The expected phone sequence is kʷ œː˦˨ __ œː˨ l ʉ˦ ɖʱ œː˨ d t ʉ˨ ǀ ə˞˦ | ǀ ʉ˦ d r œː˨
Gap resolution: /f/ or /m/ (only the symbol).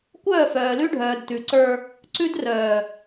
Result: f